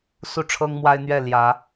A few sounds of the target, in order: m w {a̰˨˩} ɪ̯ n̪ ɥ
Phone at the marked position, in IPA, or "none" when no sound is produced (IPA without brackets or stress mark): a˦